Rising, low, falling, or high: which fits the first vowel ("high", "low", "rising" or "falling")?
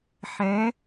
rising